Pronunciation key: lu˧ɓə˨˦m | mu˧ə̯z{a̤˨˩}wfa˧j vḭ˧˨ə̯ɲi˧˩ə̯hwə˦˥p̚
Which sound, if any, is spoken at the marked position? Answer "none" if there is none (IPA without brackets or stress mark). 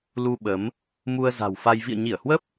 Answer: a̤˨˩